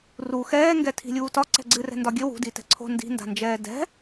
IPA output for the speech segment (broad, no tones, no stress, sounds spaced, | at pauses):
r u x ɛː ŋ ɡ ɛ tʰ i̤ lʲ uː t ɒ ǀ ɛ̤ ɡ͡ǀ ɨ r ɛ̤ n d ɒ ɡʲ ɘ w ṳ d i t ɛ̤ ǀʰ o̤ n d i̤ n d a̤ n d͡ʒ ɛː d ɛ̤